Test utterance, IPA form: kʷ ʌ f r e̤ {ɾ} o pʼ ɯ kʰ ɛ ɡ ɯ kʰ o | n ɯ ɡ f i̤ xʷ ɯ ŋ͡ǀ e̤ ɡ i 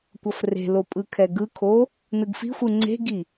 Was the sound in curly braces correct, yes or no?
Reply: no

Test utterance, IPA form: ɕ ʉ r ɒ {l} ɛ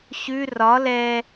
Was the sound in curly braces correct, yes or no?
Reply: yes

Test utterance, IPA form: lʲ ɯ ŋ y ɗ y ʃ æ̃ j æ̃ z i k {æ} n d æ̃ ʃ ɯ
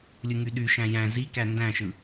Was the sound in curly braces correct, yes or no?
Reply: yes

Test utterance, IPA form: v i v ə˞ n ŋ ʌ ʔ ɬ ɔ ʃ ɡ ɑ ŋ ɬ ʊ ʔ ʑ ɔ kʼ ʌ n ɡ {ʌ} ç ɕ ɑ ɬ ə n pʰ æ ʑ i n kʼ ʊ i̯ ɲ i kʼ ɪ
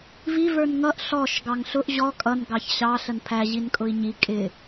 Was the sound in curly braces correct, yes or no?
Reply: no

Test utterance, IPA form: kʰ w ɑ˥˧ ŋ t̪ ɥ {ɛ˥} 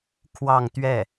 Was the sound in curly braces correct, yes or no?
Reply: no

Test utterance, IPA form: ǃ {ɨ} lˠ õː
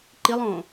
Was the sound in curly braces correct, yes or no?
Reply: no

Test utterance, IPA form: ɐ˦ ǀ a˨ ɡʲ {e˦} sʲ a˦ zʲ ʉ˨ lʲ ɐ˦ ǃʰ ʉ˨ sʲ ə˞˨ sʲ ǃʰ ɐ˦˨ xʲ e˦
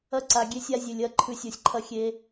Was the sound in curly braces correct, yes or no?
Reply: yes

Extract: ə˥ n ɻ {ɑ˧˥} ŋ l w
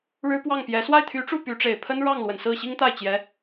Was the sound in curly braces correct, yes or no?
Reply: no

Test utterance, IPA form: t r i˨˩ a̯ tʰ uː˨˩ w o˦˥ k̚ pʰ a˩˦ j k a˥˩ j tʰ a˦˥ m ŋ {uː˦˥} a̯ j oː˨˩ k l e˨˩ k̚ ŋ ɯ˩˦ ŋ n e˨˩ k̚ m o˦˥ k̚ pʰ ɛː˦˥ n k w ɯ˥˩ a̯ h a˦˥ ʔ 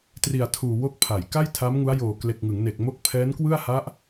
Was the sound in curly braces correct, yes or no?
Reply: no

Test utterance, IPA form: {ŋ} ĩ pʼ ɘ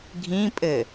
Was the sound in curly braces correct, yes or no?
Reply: no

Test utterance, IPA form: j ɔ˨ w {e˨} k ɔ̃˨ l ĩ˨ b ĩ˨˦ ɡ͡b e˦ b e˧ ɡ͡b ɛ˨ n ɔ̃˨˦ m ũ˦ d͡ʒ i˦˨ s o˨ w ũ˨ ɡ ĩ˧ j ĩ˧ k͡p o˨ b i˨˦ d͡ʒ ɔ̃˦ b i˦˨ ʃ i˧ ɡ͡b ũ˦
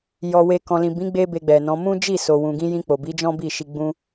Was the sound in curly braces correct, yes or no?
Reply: yes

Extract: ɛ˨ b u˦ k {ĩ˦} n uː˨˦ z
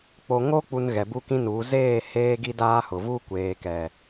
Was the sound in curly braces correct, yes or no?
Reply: yes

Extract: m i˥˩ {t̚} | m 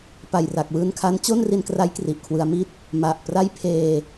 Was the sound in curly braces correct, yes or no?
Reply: yes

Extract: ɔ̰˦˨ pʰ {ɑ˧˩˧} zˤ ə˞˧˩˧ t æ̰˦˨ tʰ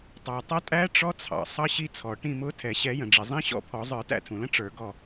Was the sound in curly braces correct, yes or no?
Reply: no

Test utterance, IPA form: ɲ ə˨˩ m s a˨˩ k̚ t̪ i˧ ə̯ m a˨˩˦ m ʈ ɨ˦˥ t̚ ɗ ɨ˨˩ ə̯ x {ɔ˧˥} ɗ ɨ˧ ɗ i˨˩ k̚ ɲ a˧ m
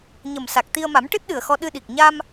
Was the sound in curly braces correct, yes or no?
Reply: no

